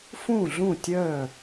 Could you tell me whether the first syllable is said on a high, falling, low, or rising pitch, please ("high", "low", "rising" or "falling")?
falling